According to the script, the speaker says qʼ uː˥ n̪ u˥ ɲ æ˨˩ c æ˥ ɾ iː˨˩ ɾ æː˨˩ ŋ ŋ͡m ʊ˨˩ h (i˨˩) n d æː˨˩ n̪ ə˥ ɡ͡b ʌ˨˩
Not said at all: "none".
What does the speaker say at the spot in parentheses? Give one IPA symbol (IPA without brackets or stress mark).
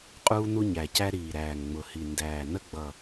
i˨˩